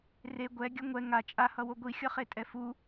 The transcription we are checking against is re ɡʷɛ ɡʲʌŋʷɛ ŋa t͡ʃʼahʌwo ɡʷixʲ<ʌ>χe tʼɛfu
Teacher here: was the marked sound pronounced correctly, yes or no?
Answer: yes